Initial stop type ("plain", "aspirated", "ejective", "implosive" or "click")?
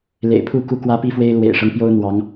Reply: aspirated